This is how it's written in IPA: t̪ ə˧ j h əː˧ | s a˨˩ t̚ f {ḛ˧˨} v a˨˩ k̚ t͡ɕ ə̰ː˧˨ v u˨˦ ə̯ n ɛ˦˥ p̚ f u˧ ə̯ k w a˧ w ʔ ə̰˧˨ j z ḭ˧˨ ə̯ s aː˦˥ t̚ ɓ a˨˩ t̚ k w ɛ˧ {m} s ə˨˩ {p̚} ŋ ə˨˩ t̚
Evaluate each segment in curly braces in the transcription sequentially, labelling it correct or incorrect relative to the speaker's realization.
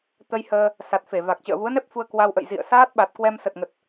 incorrect: e˧˩, correct, incorrect: t̚

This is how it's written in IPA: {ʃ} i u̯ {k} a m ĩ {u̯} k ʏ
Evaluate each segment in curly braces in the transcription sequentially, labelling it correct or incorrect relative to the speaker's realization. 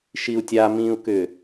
correct, incorrect: tʲ, correct

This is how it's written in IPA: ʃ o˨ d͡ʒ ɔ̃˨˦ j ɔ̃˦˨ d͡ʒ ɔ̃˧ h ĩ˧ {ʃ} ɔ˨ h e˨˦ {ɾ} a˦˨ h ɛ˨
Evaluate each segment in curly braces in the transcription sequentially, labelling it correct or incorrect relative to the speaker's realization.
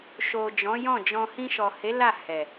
correct, incorrect: l

